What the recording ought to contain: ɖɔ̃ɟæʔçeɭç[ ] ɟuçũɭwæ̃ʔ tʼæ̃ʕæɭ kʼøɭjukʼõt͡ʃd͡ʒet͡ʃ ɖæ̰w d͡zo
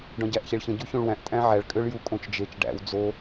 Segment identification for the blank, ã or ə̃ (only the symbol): ə̃